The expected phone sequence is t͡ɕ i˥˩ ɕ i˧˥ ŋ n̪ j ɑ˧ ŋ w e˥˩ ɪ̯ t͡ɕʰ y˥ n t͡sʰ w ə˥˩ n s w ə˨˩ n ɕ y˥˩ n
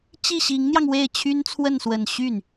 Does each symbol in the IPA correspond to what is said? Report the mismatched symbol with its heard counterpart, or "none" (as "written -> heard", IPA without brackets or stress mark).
none